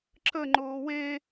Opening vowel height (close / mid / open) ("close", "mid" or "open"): mid